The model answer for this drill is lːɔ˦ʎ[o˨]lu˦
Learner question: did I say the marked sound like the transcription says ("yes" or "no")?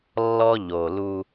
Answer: yes